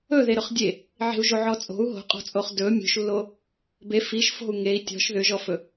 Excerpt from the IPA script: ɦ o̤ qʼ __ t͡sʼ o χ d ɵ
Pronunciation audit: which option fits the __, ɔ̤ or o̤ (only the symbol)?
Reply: ɔ̤